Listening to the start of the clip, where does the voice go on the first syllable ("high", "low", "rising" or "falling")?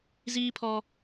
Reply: high